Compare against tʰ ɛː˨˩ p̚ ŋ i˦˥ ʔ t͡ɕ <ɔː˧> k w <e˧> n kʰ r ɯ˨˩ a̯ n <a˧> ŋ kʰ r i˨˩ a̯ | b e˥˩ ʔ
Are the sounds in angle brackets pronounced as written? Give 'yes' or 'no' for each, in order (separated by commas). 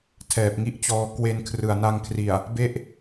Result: yes, yes, yes